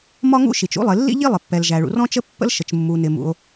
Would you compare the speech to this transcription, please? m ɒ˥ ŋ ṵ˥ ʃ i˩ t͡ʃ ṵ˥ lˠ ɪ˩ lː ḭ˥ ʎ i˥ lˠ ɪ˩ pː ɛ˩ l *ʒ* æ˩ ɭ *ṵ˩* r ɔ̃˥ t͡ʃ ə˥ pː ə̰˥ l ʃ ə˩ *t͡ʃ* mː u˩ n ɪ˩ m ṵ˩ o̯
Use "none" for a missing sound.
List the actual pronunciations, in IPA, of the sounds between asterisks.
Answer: ʒ, ṵ˩, t͡ʃ

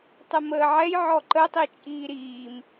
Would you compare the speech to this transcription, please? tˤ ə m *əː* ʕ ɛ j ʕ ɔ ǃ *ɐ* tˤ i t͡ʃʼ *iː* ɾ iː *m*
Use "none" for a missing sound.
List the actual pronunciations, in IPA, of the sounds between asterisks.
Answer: əː, ə, iː, m

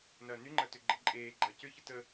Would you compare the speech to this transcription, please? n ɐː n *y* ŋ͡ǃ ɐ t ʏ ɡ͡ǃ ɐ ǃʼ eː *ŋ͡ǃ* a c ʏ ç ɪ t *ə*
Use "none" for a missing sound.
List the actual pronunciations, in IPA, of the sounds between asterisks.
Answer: y, ɡ͡ǃ, ə

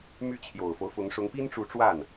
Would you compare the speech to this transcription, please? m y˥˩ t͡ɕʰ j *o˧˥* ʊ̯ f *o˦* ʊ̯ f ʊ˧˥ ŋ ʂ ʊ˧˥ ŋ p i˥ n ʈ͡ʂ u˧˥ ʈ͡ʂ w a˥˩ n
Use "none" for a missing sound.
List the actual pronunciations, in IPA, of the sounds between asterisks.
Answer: o˨˩, o˦

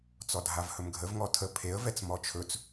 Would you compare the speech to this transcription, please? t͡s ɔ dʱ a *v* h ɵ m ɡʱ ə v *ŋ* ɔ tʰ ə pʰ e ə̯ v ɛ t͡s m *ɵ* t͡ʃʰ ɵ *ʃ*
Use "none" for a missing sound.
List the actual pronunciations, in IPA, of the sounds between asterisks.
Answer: v, ŋ, ɔ, t͡s

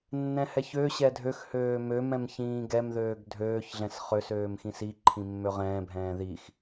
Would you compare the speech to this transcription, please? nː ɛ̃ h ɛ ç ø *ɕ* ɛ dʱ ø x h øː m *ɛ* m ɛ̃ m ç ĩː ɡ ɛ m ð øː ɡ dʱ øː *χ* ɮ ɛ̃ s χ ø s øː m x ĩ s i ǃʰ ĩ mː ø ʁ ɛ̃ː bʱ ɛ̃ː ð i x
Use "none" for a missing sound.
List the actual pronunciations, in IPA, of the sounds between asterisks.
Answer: ɕ, ø, ç

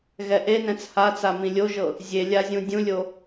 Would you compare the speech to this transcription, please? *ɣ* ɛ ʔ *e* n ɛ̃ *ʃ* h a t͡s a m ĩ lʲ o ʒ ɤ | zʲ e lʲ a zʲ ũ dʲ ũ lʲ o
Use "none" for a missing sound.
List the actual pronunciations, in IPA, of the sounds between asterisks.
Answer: ɣ, e, t͡s

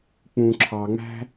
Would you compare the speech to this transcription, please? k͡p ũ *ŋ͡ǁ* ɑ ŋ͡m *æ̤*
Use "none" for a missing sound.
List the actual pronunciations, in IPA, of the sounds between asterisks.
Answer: ǁʰ, æ̤

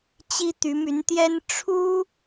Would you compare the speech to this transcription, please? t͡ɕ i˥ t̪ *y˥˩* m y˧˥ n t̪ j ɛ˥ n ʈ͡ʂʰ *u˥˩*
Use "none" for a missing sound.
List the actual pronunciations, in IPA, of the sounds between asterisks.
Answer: y˧˥, u˥

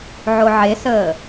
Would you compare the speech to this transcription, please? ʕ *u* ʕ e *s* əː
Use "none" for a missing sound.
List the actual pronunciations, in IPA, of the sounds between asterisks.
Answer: o, s

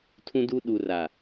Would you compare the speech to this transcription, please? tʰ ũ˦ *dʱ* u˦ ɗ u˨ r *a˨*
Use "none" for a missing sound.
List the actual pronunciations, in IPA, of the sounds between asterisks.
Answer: d, a˨

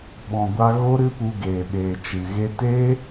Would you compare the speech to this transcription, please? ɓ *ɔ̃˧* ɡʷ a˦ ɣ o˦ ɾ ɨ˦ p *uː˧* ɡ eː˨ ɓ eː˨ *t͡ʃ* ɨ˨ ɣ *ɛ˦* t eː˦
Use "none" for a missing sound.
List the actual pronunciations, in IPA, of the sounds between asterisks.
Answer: ɔ̃˧, u˧, t͡ʃ, e˦

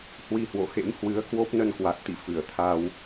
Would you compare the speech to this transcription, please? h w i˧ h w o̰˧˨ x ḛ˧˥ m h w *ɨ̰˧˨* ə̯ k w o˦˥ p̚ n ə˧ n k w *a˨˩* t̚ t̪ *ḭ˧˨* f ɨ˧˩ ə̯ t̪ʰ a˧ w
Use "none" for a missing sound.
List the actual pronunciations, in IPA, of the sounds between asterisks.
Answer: ɨ˨˦, a˨˩, ḭ˧˨

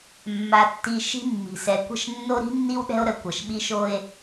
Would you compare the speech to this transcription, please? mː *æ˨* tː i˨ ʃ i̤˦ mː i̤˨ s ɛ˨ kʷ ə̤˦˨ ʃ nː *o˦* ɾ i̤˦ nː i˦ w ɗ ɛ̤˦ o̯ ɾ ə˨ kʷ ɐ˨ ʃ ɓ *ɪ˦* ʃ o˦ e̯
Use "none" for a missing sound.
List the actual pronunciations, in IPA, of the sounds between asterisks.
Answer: a˨, o˦, i˦

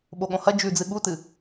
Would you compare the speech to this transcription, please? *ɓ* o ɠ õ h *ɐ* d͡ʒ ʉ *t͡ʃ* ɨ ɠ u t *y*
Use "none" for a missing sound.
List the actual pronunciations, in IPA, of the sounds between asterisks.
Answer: ɓ, ɐ, d͡z, ɨ

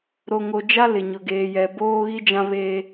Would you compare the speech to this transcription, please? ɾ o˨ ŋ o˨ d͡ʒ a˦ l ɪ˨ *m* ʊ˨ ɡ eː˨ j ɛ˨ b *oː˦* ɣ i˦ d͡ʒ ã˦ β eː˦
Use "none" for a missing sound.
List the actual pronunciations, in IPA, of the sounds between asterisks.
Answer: ɲ, oː˦

